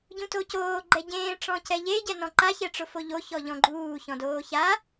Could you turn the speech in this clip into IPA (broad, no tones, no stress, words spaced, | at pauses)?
ɟũtocoː ɡ͡ǃɛɟẽː ʈ͡ʂɔ̃cɛʎe ɟɛnɔ̃ǃa çɛʈ͡ʂʊfoʎo çɔʎɔ̃ɡ͡ǃuː çɔ̃doːça